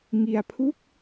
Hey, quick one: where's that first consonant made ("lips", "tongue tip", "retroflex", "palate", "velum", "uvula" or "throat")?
velum